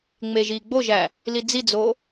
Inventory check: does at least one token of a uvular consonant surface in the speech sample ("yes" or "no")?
no